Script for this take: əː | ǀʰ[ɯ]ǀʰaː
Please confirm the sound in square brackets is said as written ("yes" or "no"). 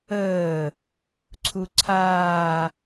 no